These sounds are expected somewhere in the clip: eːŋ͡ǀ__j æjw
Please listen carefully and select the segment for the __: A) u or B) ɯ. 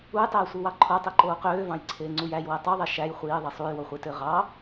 A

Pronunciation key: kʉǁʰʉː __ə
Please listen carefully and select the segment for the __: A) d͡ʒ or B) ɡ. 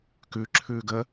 B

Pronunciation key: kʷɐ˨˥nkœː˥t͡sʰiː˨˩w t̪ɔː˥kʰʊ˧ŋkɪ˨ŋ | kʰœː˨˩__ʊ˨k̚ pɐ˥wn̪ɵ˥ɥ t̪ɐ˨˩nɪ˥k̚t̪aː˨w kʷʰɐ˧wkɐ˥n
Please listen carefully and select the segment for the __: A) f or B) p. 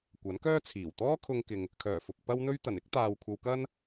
A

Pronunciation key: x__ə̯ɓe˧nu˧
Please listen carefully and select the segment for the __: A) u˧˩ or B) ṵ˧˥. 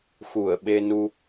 A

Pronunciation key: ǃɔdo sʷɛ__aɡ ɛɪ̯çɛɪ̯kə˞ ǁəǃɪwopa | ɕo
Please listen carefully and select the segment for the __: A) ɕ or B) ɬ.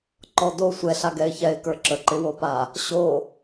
B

